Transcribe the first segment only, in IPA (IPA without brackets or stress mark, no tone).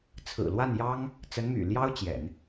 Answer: t͡sʰ